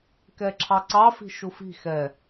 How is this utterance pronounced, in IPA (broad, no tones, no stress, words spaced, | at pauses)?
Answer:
kɛǁʰɑǀɑfi̤ ʃufi̤ xɛ